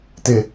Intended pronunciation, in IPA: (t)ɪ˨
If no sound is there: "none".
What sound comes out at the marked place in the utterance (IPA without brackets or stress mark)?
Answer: t